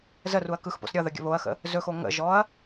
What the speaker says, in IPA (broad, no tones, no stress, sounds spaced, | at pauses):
z ə r u ɐ̯ k ɯ x p o̰ s ɾʲ ʌ ð ə ɡʲ ə̰ β o ɐ̯ x ə̰ | z ɵ x o ŋ ə̰ ʒ ɔ ɐ̯